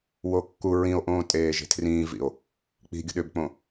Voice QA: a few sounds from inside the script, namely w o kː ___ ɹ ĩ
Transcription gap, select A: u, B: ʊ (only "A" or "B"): A